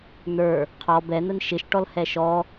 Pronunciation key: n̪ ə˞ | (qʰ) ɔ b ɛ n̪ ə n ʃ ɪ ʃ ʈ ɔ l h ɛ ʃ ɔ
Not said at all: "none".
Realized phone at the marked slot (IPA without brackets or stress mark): qʰ